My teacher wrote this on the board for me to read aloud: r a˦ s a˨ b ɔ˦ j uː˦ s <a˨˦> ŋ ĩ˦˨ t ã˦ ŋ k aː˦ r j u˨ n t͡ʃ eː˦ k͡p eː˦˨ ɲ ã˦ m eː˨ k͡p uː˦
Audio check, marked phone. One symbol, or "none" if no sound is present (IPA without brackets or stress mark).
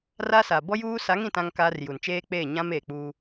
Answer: a˨˦